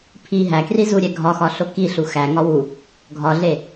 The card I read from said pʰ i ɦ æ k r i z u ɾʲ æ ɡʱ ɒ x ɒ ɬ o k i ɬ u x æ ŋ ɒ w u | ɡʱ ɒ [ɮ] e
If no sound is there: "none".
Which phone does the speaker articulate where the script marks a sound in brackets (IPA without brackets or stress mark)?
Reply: ɮ